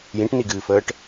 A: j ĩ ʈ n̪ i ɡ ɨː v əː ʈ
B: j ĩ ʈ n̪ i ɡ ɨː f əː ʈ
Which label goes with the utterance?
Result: B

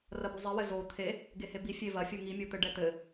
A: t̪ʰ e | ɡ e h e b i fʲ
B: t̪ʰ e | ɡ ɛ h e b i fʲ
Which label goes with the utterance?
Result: A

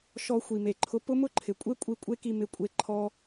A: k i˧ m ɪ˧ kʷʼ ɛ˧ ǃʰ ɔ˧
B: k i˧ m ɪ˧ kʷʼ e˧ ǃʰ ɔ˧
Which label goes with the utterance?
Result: B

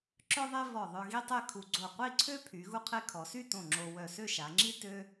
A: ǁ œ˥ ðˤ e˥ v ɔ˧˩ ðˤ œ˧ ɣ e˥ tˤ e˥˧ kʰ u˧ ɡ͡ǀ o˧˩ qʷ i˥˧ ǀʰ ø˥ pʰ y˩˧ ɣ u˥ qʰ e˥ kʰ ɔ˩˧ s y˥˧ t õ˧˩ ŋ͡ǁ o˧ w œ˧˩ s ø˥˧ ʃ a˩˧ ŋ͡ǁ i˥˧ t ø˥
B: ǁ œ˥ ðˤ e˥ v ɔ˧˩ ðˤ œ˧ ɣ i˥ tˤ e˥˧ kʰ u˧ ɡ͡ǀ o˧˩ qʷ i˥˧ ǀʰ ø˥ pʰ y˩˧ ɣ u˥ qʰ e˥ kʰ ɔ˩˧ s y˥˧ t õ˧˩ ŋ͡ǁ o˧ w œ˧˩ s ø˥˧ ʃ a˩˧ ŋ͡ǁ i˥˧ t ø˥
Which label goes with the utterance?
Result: B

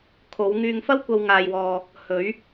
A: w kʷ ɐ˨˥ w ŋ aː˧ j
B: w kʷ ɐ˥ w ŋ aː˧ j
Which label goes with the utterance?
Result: B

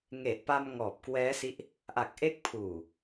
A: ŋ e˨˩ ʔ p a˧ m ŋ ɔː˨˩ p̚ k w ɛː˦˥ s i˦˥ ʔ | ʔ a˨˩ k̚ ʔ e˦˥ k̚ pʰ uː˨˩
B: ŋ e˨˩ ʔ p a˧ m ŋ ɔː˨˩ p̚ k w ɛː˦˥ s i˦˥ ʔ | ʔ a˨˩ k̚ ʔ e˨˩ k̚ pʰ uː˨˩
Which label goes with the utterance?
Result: A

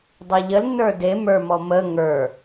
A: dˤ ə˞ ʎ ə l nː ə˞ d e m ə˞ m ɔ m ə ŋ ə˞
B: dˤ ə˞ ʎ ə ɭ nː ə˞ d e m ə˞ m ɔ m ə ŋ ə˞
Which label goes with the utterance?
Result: A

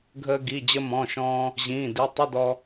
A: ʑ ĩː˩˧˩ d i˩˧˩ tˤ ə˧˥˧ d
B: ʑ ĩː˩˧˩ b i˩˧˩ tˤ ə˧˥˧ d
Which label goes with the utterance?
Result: A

